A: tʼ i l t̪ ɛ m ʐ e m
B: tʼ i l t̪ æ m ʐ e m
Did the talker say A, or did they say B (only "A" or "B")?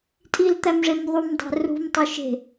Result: B